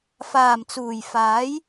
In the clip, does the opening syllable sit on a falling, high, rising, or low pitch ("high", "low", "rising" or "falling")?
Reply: low